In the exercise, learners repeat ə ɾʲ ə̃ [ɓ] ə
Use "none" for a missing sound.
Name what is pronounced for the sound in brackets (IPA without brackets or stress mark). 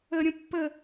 pː